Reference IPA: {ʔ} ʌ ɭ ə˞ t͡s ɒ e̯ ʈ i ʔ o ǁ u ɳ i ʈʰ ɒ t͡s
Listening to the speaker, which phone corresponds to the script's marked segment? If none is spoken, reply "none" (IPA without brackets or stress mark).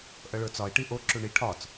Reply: ʔ